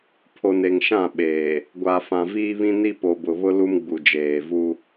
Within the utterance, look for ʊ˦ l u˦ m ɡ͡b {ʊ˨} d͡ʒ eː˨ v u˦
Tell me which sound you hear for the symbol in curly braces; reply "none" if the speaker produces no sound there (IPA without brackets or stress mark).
u˨